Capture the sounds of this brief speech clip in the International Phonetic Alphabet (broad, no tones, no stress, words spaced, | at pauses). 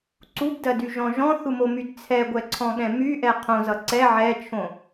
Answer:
ǀubdɜdyʒɔ̃ ʒɔ̃θumomyd t͡sʰɛɡʷɛǀʰɔ̃ɠɛ̃ myʔɛ qʰõzʌ ǀɛ ʕɛt͡ʃʰõ